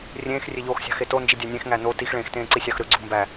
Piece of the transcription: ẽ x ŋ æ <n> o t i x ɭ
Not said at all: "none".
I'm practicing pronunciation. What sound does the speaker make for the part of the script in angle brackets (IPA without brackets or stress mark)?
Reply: n